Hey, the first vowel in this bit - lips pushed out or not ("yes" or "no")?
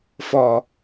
yes